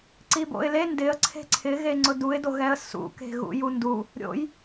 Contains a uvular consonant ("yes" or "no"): no